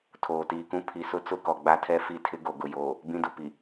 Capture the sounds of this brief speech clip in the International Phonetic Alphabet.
tʰoː˨tiː˨kũ˦ pʰi˨sʊ˦ t͡sʊ˦kɔ˨ɡ͡ba˦tʰɛ˦ fi˦tʰɪ˦ɡo˨ ɡʊ˨joː˨ | bĩ˦dʊ˨pi˨

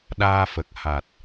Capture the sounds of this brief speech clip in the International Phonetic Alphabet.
ɗaː˧fə˨˩k̚ ha˨˩t̚

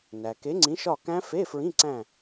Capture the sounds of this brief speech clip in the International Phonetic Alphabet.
næ˩ ke˨˥ŋ͡ǀĩ˨˥ʃɒ˦˨kæ̃˦˥ fe˧˥˧ fɹĩ˧˥˧ǀæ̃˦˨

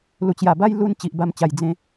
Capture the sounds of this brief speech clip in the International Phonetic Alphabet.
lu˨˩t͡ɕja˨˩ba˦j lu˦n t͡ɕi˨ʔba˧mt͡ɕa˨˩j d͡zẽ˨˦

